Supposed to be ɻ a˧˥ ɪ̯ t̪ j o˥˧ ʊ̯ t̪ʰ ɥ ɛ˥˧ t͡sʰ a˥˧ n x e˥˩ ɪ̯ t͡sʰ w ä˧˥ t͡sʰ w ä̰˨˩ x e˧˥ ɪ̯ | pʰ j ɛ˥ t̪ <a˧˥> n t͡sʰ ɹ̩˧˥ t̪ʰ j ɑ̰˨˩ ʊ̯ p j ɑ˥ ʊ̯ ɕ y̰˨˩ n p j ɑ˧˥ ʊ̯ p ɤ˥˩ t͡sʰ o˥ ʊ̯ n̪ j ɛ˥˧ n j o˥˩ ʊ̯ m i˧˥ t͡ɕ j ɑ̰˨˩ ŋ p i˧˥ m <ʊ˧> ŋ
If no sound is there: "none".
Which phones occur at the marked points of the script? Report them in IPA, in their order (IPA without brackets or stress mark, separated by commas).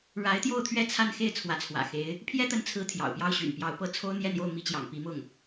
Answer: ə˧˥, ʊ˥˩